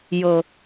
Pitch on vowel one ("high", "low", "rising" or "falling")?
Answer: low